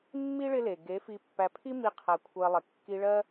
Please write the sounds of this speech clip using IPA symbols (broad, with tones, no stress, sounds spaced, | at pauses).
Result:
mː i˦ ɭ ɪ˦ l e˨ ɡ e˨˦ f i˧ pː æ˧ pʰ i˦ m i˧ qʰ æ˧ kʷʰ ɜ˧ lˠ ɪ˨ kː i˧ ɭ ɜ˦